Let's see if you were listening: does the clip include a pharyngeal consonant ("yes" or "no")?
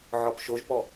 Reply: yes